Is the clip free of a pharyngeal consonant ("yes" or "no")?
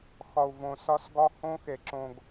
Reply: yes